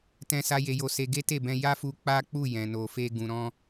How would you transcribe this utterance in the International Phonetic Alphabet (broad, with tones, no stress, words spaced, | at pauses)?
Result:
tɛ̃˦sa˦ je˧jo˧se˧ ɡe˦te˦˨bɛ̃˧ ja˦fu˧ k͡pa˦k͡pu˦˨ jɛ̃˨no˨fe˧ ɡũ˨ɾɔ̃˧